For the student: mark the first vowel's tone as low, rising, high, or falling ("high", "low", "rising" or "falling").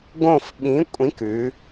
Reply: falling